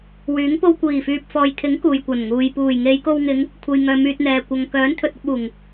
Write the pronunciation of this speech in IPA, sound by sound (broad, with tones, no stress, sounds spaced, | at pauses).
w yː˨˥ ŋ p o˧ w kʷ iː˨˩ f yː˨ p̚ f ɔː˨ j t̪ʰ ɪ˨˥ ŋ k uː˨ j kʷ ɐ˨˩ n ŋ uː˨ j p uː˨˩ j ŋ e˨˧ j k o˧ w ŋ ɪ˨˧ ŋ | kʷʰ e˨ j ŋ œː˨ m yː˨ t̚ n̪ ɛː˨ kʷ ɐ˨ ŋ k œː˨˥ n t̪ʰ ɵ˨ t̚ ɐ˧ p̚ uː˨˩ ŋ